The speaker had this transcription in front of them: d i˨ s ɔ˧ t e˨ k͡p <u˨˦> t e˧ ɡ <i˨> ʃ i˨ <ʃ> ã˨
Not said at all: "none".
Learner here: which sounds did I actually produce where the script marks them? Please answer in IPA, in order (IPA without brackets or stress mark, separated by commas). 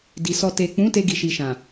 ũ˨˦, i˨, ʃ